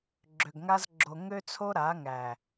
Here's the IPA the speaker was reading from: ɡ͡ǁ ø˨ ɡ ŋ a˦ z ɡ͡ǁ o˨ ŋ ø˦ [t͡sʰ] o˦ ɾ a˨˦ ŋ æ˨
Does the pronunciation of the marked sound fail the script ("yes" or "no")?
no